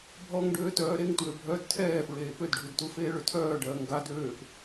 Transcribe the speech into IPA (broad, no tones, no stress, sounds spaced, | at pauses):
bʱ ɔ ŋ ɖ øː t œː ɾ e ŋ t w ø bʱ œ d tʰ ɛː f ɹ eː p ø d ɖʱ u d t u f eː ɭ ø tʰ œː ɖ ɜː ŋ ɡ a d øː p